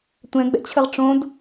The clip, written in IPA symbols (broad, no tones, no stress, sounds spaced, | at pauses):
tʷ ɛ̃ ɡ͡b ɛ̰ t͡ɕʰ ə ʁ ʈ͡ʂ õ d